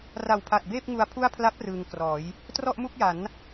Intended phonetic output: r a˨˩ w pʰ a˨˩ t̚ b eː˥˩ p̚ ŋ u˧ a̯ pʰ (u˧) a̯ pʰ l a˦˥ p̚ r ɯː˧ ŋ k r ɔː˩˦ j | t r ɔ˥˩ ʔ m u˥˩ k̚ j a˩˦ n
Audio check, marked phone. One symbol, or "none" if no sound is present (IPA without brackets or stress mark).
u˥˩